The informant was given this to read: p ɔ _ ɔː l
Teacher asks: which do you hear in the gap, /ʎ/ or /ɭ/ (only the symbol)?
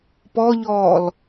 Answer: ʎ